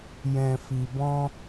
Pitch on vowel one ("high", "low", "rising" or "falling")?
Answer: low